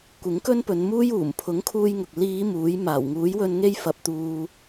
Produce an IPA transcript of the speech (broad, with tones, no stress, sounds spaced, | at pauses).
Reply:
kʷ ɪ˨˥ ŋ k ɵ˥ n p ɵ˨˧ n m uː˥ j uː˨˩ m pʰ ʊ˨˥ ŋ kʰ uː˧ j ŋ ʊ˨ k̚ l iː˨˧ m uː˨˥ j m aː˨˩ w ŋ uː˨˥ j w ɵ˧ n ŋ e˥ j f ɐ˧ p̚ t̪ uː˧